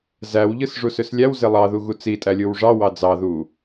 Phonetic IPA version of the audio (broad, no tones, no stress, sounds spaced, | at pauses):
z æ w ʎ ɯ s ʐ u s ø s lʲ æ w z e lˠ ɑ ð u ɣ u t͡s i tʼ æ lʲ ɯ w ʐ ɑ w ɑ d͡z ɑ ð u